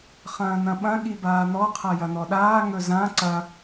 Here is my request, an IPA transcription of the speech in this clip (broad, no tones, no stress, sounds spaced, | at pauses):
χ ɐ̃ː n̪ ɐ̃ ɓ ɐ̃ ɠ i b aː n̪ ɔ qʰ a j ɐ n̪ ɔ ɗ aː ŋ ɵ z ã ǀ ɐ